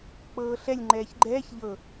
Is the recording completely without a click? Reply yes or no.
no